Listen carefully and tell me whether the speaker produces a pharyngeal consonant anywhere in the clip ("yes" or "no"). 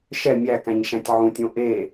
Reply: yes